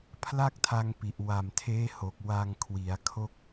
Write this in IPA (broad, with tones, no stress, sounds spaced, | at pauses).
pʰ l a˥˩ k̚ tʰ a˧ ŋ p i˨˩ ʔ w a˨˩ m tʰ eː˦˥ h o˨˩ k̚ w a˧ ŋ kʰ w i˩˦ a̯ kʰ o˦˥ k̚